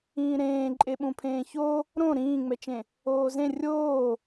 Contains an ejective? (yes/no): yes